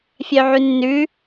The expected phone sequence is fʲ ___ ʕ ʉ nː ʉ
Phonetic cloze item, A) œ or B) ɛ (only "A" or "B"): A